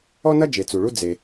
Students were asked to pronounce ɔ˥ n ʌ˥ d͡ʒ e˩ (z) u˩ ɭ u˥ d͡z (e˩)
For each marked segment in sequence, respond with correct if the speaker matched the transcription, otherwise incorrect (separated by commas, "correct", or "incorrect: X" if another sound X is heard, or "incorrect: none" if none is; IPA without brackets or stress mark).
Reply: incorrect: t͡s, correct